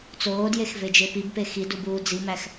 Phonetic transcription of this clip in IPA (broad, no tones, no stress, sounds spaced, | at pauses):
t͡s oː d j e x v e d͡ʒ e p i b p e x i d u b uː d͡z i m æ x